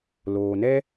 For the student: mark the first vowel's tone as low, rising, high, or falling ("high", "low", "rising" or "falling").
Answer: low